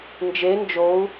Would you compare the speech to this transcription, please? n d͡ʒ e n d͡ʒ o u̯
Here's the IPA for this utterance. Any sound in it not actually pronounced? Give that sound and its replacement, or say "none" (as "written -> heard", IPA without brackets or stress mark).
none